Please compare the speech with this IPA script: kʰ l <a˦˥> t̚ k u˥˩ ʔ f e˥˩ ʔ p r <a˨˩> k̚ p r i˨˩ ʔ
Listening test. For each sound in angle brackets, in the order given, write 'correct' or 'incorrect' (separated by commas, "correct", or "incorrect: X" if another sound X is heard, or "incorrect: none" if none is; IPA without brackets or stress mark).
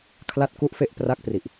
incorrect: a˥˩, incorrect: a˦˥